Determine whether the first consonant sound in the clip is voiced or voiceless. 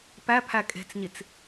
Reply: voiceless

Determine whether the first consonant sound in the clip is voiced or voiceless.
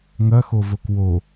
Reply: voiced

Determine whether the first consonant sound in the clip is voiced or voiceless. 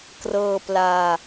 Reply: voiceless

